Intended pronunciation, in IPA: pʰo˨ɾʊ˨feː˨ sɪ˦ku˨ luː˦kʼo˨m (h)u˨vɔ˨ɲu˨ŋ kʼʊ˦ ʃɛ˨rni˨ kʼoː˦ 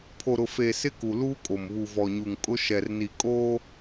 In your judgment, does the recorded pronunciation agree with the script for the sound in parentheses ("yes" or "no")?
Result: no